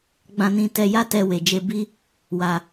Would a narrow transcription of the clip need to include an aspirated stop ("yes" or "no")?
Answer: no